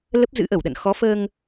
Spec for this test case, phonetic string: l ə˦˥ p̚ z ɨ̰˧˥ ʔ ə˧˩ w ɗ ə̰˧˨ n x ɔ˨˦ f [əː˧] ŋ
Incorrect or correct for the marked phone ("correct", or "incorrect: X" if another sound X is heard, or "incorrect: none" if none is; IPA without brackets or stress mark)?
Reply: correct